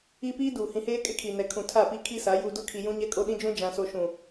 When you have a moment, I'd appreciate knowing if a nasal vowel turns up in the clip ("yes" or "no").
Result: yes